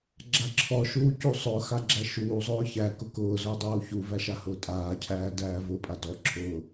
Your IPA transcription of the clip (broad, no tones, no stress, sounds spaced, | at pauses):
ɡ͡ǁ a ǁʰ ɔ ʃ uː c u sˤ ʊ x a ɡ͡ǁ æ ʃ uː zˤ ʊː ç æ k ʊ k ʊː z ʊː dˤ uː ç u v æ ʃ a h ʊː tʼ aː cʰ æː d æː v ʊ pʼ a d ɔ ǁʰ ʊː